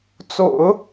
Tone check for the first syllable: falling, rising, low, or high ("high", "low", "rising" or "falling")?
low